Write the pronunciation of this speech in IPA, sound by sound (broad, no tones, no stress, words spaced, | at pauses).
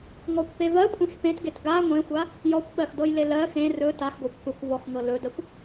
ŋɔkʷpe vɜkʷʼẽx pẽtɡet ɡa ŋʷẽxʷa | jɔkʷɓɜxdɤjle lɜ xẽ rɵ taxɡʷakʷ pɯkʷ vɔxŋɤ lɵdɜkʷ